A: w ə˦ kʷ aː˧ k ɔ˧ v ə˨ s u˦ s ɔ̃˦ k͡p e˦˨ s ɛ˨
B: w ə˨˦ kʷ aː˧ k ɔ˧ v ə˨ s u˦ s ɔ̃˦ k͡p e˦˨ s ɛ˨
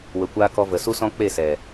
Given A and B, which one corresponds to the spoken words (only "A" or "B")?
B